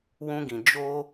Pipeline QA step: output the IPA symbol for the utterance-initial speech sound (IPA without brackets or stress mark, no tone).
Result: w